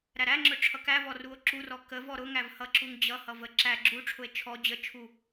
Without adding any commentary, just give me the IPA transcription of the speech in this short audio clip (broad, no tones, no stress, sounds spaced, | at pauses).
ɾ æ ɾ æ ŋ͡ǁ ʊ ʈ͡ʂʰ ʌ k æ v ɔ r u o̯ ǁ u r ɔ k ə v ɔ ɾ ʊ ŋ æ v h ʌ ǁ u ŋ d͡ʑ ʌ h ʌ v ə ǁ æ ɡ͡ǁ u ʈ͡ʂʰ ʊ e̯ t͡ʃʰ ɔ d͡ʑ ə t͡ʃʰ u